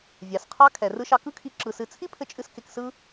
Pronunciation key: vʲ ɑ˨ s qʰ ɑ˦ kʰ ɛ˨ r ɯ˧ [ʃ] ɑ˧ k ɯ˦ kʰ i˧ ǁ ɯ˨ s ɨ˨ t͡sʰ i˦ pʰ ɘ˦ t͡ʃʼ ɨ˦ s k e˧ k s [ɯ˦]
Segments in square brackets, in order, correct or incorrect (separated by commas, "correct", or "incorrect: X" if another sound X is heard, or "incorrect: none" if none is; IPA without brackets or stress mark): correct, correct